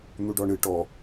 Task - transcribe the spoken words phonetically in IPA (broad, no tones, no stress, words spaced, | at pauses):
n̪uɖɔɳɨ ʈɔ